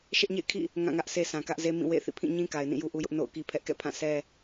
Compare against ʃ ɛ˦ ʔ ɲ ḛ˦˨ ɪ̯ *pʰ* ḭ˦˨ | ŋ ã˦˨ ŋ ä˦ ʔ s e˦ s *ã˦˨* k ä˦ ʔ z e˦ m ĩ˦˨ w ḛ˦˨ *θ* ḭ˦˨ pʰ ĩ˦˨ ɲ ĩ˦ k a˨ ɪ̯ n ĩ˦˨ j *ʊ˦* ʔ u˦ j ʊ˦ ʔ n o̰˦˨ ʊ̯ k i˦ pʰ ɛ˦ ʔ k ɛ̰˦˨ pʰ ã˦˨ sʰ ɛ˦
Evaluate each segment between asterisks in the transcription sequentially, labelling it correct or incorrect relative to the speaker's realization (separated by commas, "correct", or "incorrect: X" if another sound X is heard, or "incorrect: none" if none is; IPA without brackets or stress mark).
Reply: incorrect: kʰ, incorrect: ã˨, correct, incorrect: u˦